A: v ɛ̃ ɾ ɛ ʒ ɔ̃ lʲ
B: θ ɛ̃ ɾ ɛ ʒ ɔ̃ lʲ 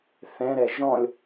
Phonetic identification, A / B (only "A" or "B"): B